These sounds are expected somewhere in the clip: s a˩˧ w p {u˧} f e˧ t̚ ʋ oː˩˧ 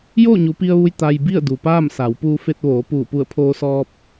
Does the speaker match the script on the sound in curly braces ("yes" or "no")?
no